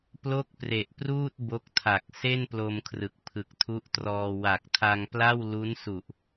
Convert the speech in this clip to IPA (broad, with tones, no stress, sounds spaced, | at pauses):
p l o˥˩ k̚ p r e˨˩ ʔ p r uː˥˩ t̚ b o˦˥ k̚ tʰ a˨˩ k̚ s e˥˩ n p l o˧ m kʰ r ɯ˨˩ k̚ pʰ ɯ˨˩ k̚ tʰ u˦˥ ʔ t r ɔː˧ w a˨˩ k̚ tʰ a˧ ŋ p l a˥˩ w l u˦˥ n s u˨˩ ʔ